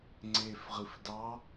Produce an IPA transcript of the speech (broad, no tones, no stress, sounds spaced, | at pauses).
ŋ͡ǀ e f ʁ ɨ f d ɑ